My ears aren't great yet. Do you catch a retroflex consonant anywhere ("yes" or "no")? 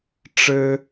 yes